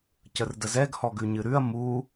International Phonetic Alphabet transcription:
cərdəzɛɡ hɔɡʉɲɨɾʉɐ̯ mu

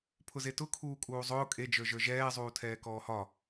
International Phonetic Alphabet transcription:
pʰʊzetʊ kʰuːkʼuːzˤʊː kʼed͡ʒə˞ʒə˞ ʒɛːzˤuːtʰɛː kɔːhɒ

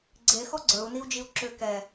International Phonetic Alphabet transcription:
ɡ͡ǀe xɔɡ͡ǀə˞u̯niu̯d͡ʒiu̯ ǁʏ kɛ

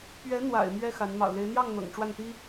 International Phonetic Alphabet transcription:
pɥɛ˧˥n̪wa̰˨˩ɪ̯ mɥɛ˥xa˧˥n mɑ̰˨˩ʊ̯le˧˥ɪ̯ n̪jɑ˥˩ŋ n̪ɤ̰˨˩ŋʈ͡ʂwa˥˩nt̪i˥

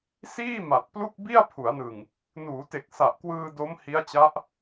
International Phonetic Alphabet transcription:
siː˥˩ ma˨˩t̚plu˥˩k̚ bi˥˩a̯pʰu˩˦a̯nɯ˨˩ŋ | nuː˩˦te˨˩k̚sa˨˩ʔkwɯː˧ do˦˥m hi˦˥a̯t͡ɕa˦˥ʔ

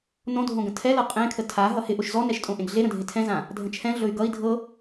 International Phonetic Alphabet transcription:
nõdʱõɡə̃ tʰɛlɤ qʼẽkʰə tʰa ɦʌhɪ ʔoʃzɔnɛʃtʼõ ʔẽɡɮeɾə̃dʱɪ tʰɛ̃zã | dʱə̃t͡ʃʰɛ̃ ɮɵy̯ɡʌi̯ dʱɤ

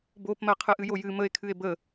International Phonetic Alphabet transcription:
bopmɜ qʰɨʔɨjojɨ məe̯kʰɨe̯ bə

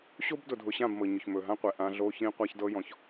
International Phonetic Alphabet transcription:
ɕo˦bdʊ˨dʱʊ˨ɕã˦˨b mɤ˨ɲʊ˨çmɵ˨ɦã˦ qʷɛ˨ʔã˦ ɮo˦ çĩ˦ qʷa˦çdɤ˦jɔ̃˨ç

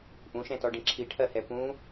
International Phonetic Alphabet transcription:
ʔũʃɛ̃tɔɖĩ ǁʰiʈʰɜhɛ pũ

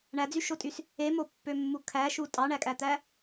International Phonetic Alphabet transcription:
ɳæd͡zyʃotʼys | emopːømːu kʰæʃu tʼɑɳækʼæt̪æ

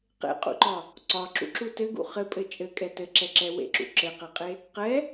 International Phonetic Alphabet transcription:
qḛqʼṵǃɒ | ǀɒǁṵǁu tɘɡṵ χɘpʼɘ t͡ʃʼɘkʼɛ tɘǁɛǁɛ wḛǁṵ ǁɘqɛqʼe | qɛ

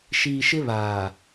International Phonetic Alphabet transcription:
ʃiː˨ʃɪ˦βaː˨

